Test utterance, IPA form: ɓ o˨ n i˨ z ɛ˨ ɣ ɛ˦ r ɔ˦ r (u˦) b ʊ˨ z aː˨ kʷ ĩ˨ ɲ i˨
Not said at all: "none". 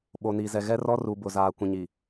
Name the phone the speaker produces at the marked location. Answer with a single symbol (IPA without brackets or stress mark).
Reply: u˨